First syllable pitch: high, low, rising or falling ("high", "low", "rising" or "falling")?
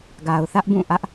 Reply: low